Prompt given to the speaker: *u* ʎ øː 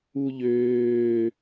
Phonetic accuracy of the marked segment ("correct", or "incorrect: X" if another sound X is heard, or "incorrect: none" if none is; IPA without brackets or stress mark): correct